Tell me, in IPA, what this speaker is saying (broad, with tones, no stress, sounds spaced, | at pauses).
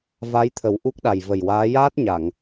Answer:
v a˧˥ j t̪ʰ ə˨˩˦ w ʔ u˦˥ k̚ ɗ a˨˩ j v ə˨˩ j w aː˧˥ j aː˦˥ t̚ ɲ a˨˩˨ ŋ